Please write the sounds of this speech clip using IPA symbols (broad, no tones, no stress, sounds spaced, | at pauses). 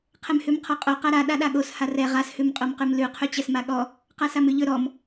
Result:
qʰ ɛ m h ʉ m qʰ ɔ qʼ o q a ɾ a ɗ a ɗ a ɠ o s h a r ɛ ʁ a s h ʉ m qʼ o m q ʉ m l ʉ qʰ ʉ t͡ɕ ɛ s m a ɠ ɔ | q a s a m ʉ ʎ ɵ ɾ ɔ m